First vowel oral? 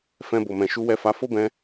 no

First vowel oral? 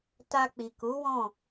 yes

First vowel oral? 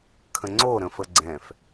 no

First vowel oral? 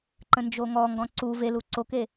no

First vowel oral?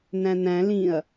no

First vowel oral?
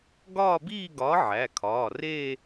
yes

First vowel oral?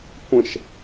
no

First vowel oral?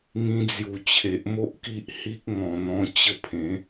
no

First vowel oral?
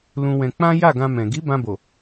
no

